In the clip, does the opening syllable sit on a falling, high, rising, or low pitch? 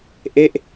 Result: falling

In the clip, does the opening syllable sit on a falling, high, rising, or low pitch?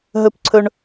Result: high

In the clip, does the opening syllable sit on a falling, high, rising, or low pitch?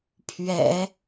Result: low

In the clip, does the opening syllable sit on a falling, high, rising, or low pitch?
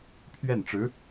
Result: falling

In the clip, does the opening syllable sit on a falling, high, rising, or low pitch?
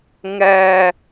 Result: high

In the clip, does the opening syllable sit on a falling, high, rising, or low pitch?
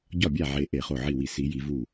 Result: falling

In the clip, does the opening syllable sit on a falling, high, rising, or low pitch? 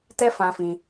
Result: high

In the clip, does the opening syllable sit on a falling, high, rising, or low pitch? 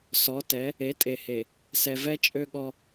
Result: rising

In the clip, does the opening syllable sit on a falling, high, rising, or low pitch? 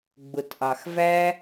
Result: low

